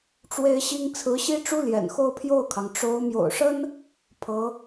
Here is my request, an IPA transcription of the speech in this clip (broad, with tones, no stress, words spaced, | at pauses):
ʈ͡ʂwe˥ɪ̯ɕi˥ŋ t͡sʰɹ̩˧˥ɕi˥ʈ͡ʂu˥ ljɛ̰˨˩nxo˥˧ʊ̯pʰjo˥˩ʊ̯kʰɑ˩ŋ ʈ͡ʂo˧˥ʊ̯ mjo̰˨˩ʊ̯ʂə˥n | pʰɤ˧˥